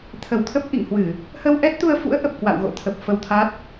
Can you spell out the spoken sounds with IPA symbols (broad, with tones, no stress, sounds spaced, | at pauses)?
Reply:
t̪ʰ ə˧˩ w t̪ʰ ə˦˥ p̚ ʔ ḭ˧˨ ŋ h w ɨ˧˩˨ | h ə˧ w ʔ ɛ˦˥ t̚ t̪ u˧ ə̯ f ṵ˧˥ ə̯ ʔ ə˨˩ p̚ k w a̰˧˨ w ɣ o̰˧˨ t̪ʰ ə˨˩ p̚ f ə˧ w t̪ʰ a˦˥ t̚